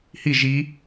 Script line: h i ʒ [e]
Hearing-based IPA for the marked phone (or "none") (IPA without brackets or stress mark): i